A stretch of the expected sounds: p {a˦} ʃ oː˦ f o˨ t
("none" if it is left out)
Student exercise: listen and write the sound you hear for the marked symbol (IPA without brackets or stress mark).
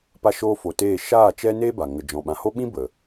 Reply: a˦